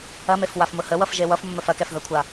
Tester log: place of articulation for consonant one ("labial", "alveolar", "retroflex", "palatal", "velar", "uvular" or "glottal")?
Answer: labial